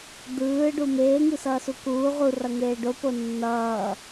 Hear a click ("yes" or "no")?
no